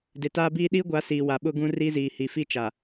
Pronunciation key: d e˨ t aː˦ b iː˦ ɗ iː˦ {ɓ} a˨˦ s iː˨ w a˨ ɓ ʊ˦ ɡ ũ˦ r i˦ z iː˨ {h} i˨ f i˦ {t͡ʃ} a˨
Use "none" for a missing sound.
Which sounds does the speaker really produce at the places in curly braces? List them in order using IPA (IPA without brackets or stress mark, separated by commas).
ɡʷ, h, t͡ʃ